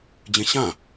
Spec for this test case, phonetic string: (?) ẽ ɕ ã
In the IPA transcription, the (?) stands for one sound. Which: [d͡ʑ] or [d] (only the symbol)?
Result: d͡ʑ